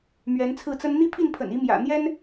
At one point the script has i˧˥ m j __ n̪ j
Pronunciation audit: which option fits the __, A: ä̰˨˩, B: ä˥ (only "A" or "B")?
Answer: A